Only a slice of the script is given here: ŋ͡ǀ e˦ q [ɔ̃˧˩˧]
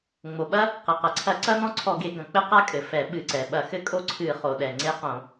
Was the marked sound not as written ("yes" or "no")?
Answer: yes